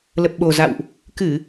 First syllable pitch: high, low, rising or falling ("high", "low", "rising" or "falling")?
low